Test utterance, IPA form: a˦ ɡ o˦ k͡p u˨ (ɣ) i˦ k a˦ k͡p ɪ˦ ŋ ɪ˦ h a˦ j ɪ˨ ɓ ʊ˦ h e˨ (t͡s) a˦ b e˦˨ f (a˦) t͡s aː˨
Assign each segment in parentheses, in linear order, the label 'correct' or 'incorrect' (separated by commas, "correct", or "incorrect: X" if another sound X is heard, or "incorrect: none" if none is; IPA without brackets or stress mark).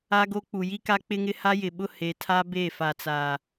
incorrect: j, incorrect: tʰ, incorrect: a˨